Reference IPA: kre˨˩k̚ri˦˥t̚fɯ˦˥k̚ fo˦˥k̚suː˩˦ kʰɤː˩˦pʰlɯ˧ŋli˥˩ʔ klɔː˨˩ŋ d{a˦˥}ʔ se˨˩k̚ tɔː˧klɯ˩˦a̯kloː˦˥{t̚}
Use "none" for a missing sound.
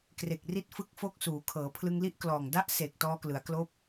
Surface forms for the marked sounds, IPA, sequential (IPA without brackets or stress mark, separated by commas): a˦˥, p̚